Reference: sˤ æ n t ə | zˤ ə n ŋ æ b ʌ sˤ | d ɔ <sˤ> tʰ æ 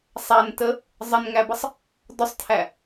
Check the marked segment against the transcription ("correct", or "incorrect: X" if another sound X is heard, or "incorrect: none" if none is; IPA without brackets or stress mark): correct